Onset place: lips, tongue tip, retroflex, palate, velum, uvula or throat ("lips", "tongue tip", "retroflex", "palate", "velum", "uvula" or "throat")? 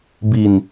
lips